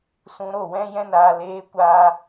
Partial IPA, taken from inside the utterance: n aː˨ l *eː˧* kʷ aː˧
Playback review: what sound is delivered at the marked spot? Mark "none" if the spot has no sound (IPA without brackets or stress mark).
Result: eː˧